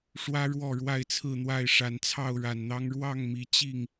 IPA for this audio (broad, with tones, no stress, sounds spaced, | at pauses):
ʂ w ä˦ ɻ w ɔ˥˨ ɻ w a˥˨ ɪ̯ t͡sʰ ɹ̩˥˨ n̪ w a˥˨ ɪ̯ ʂ a˨˦ n t͡sʰ ɑ˥˨ ʊ̯ ɻ a˨˩ n n̪ ɑ˦ ŋ ɻ w ɑ˥˨ ŋ m i˨˦ t͡ɕ i˥˨ ŋ